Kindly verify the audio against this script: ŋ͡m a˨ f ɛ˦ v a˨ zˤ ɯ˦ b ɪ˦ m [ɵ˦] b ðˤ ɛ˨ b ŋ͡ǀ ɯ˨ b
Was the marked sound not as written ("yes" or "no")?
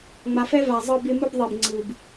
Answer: no